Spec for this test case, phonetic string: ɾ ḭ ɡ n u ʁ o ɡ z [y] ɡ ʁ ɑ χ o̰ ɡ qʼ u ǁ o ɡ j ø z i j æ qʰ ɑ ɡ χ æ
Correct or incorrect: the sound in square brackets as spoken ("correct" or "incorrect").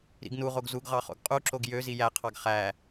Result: incorrect